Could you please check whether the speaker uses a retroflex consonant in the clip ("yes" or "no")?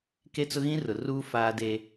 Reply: no